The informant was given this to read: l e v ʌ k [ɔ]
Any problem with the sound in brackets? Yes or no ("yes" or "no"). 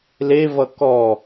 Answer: no